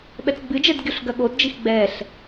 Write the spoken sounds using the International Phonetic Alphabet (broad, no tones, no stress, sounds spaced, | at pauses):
ɓ ɛ t͡s ɡ͡b ɨ d͡ʒ ɛ d ɡʲ o ɬ ɡ ɐ ɠ o d d͡ʒ i x ɡ͡b ɛ ɬ